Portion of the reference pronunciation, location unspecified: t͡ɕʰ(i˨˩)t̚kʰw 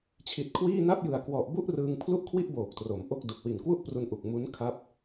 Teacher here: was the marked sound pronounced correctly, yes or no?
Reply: yes